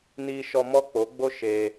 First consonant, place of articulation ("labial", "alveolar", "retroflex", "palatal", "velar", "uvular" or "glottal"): alveolar